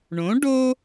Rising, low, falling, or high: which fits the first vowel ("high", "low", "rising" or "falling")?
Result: rising